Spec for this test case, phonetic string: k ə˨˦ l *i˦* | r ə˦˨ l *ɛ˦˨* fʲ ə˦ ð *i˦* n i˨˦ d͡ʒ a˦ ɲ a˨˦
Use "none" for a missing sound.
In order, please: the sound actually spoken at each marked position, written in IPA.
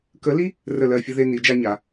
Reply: i˦, ɜ˦˨, e˦

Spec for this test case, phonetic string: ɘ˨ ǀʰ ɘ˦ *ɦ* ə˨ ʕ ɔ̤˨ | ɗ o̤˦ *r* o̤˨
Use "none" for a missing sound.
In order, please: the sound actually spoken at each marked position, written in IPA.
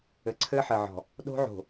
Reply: ħ, ʕ

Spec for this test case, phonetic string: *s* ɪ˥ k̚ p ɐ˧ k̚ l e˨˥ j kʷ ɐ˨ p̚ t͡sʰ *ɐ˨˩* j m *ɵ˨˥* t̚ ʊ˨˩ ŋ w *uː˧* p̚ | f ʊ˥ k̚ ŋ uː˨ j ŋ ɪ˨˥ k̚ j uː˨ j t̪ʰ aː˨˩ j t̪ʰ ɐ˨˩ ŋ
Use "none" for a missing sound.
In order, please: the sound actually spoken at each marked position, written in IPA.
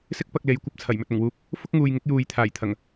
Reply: s, ɐ˨˩, ɵ˨, uː˧

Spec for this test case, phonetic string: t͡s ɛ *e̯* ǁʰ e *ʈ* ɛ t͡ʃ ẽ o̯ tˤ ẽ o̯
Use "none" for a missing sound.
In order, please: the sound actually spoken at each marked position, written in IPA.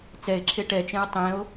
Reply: e̯, ʈ

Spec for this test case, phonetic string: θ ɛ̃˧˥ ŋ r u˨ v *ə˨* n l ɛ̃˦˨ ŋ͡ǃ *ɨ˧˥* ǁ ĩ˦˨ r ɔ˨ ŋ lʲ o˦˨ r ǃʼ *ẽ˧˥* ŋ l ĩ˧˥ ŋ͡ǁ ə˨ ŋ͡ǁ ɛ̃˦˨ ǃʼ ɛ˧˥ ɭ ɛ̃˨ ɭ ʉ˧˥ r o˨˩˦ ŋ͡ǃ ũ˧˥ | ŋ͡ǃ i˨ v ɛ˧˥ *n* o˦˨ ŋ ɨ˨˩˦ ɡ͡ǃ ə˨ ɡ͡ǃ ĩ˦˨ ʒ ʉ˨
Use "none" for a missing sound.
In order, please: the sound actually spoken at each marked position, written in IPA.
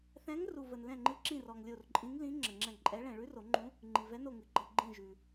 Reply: ə˨, ɨ˧˥, ĩ˧˥, n

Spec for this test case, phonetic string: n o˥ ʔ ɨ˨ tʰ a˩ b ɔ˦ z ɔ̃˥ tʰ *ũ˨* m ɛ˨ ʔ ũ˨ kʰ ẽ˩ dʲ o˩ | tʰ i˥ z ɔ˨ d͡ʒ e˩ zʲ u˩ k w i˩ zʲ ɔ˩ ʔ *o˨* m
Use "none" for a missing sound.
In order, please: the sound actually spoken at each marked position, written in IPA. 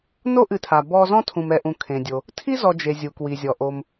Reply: ũ˨, o˨

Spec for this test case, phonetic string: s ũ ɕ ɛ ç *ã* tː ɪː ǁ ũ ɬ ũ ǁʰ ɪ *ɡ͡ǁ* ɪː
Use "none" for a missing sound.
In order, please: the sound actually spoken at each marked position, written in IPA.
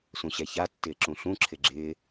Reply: a, ɡ͡ǁ

